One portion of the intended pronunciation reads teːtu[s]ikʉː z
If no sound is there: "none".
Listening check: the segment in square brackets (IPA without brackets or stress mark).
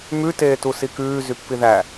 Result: s